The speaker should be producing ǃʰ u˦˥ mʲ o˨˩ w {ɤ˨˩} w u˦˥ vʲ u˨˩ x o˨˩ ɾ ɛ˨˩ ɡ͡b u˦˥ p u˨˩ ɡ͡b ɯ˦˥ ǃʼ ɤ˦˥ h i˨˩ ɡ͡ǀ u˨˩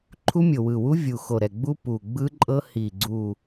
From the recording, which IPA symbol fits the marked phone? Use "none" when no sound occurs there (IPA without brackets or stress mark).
ɯ˨˩